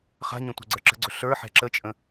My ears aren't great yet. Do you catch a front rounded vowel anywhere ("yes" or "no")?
no